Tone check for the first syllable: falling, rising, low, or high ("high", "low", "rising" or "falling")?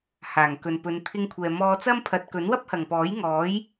low